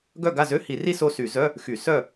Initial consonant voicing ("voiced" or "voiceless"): voiced